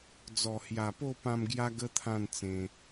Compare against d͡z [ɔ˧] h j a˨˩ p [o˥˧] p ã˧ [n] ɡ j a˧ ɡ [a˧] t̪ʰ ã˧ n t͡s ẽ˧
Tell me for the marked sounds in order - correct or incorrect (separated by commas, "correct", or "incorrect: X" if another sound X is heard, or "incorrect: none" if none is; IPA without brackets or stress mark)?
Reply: incorrect: ɔ˨˩, correct, incorrect: m, incorrect: ə˧